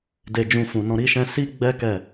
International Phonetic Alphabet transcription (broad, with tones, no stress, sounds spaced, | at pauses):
d e˨ d͡ʒ ũ˧ f ũ˨ n ɔ̃˧ ɾ i˦ ʃ ɛ̃˦ s i˦ ɡ͡b ɛ˦ k ɛ˦˨